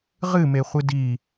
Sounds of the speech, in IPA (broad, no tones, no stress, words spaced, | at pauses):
ʁɨmeχʷɨ di